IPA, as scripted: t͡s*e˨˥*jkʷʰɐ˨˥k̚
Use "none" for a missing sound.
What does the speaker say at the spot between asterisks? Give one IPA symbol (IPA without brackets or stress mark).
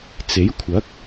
e˨˥